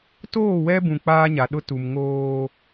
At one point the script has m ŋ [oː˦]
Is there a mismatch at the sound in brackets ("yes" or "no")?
no